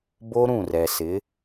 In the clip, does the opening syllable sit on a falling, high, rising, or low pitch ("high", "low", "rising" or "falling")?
high